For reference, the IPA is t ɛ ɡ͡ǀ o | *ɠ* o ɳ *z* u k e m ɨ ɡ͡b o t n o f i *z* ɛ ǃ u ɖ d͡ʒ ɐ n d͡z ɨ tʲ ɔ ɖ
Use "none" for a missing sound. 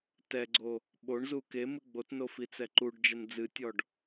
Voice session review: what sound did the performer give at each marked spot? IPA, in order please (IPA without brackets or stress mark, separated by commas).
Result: ɓ, z, t͡s